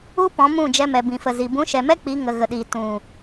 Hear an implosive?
yes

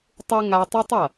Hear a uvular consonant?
no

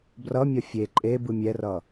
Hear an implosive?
no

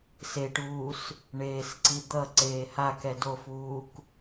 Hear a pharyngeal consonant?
no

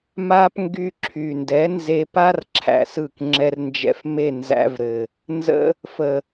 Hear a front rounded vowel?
yes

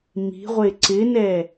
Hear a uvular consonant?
yes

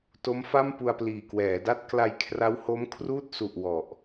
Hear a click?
no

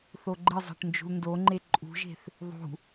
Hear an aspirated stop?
no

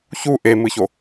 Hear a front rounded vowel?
no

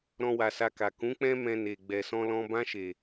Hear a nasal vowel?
yes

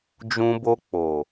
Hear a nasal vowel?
yes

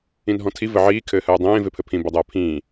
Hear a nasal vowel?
yes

